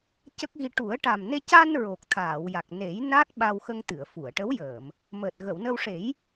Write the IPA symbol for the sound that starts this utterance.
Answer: c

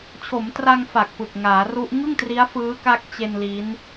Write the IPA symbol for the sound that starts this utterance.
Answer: t͡ɕʰ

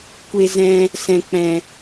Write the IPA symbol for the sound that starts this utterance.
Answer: kʷ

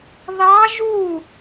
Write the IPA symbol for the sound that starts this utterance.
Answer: ð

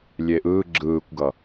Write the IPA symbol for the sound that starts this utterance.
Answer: lʲ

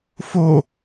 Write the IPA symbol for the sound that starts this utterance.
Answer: f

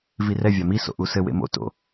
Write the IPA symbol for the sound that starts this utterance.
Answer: v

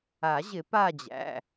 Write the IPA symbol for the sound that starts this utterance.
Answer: a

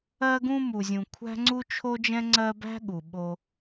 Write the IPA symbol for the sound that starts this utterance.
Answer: ɜ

